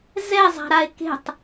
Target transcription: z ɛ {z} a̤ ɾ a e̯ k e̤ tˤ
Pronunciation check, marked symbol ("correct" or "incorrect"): incorrect